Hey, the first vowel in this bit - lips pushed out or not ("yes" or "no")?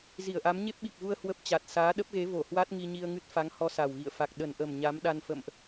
no